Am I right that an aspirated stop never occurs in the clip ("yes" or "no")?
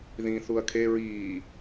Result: no